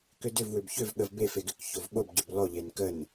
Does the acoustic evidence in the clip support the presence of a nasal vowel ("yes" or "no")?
no